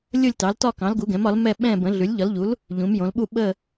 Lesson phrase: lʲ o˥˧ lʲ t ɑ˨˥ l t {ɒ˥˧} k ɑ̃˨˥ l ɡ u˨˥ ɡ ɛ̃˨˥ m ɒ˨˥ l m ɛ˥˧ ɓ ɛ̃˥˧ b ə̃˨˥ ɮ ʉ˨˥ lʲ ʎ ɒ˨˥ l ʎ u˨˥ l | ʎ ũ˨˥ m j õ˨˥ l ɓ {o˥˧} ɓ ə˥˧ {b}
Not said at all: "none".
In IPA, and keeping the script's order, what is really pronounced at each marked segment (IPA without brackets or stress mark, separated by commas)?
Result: ɒ˥˧, u˥˧, none